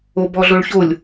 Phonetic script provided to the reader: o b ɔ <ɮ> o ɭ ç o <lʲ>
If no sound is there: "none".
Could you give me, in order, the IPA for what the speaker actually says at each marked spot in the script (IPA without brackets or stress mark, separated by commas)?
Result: ɮ, lʲ